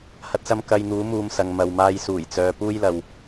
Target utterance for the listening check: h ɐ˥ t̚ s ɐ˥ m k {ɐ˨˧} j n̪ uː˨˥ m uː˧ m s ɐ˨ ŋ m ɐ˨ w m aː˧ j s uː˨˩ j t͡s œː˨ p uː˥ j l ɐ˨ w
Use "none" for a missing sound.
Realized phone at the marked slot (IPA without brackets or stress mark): ɐ˧